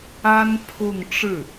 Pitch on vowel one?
high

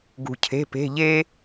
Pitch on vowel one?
low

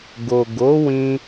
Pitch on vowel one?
low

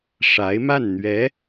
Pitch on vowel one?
rising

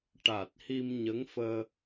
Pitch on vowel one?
low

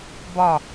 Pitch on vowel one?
falling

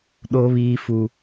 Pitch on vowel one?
high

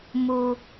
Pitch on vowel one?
low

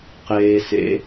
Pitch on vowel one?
low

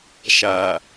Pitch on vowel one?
low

